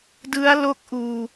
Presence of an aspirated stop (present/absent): absent